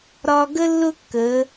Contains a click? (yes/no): no